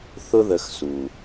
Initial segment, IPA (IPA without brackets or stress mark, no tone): θ